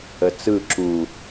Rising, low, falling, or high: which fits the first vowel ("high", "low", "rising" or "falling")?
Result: low